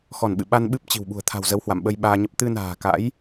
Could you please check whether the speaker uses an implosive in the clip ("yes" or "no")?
yes